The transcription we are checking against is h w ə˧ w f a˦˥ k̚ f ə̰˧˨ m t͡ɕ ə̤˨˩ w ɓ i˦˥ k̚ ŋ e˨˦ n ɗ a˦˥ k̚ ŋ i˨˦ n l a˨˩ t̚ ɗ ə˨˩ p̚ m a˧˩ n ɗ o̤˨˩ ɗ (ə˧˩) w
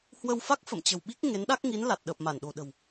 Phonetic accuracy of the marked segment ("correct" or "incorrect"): incorrect